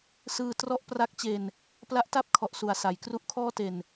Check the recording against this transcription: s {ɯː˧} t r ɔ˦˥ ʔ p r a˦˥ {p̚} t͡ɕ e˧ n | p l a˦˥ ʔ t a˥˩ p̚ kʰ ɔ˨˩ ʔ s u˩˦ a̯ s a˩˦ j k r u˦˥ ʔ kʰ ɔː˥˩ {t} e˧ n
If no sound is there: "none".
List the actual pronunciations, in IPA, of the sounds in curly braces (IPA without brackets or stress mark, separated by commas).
ɯː˧, k̚, t